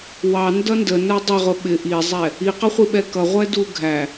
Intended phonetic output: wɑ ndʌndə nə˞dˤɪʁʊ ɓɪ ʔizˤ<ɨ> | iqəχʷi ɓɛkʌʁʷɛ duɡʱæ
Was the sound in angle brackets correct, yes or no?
no